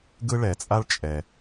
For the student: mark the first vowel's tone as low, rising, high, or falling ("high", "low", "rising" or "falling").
high